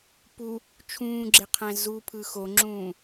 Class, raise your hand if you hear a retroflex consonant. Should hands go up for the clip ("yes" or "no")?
no